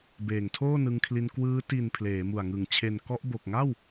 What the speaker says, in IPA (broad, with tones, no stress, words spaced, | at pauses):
beː˨˩ŋtʰoː˥˩nɯ˧ŋkʰli˧n kwɯː˦˥ ti˨˩n pʰleː˩˦mu˨˩a̯ŋɯ˨˩ŋ t͡ɕʰe˨˩nkɔ˦˥ʔ bo˨˩k̚ŋa˥˩w